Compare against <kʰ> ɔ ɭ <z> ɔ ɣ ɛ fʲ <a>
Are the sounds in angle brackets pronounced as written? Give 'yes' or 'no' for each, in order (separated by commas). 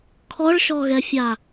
yes, no, yes